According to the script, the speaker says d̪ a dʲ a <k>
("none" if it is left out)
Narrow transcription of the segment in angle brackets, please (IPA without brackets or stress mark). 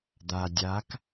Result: k